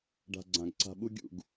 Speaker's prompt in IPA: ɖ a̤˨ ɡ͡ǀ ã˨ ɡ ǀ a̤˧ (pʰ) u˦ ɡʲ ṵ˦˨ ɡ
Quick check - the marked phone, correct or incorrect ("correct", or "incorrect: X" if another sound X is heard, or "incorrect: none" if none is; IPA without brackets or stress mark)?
incorrect: ɓ